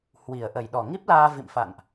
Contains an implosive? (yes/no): yes